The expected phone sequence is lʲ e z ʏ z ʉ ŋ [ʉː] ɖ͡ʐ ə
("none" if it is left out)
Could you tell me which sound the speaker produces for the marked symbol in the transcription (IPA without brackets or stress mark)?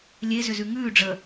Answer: ʉː